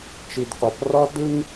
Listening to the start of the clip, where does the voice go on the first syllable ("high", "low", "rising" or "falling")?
low